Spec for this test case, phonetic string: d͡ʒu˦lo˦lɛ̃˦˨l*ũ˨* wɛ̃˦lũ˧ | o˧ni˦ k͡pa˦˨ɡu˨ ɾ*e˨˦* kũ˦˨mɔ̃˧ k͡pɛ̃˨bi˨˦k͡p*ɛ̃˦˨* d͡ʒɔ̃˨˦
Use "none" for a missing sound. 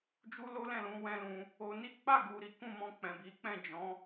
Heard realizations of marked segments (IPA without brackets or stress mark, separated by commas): ũ˧, i˨˦, ɛ̃˦˨